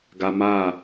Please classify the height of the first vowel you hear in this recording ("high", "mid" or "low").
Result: low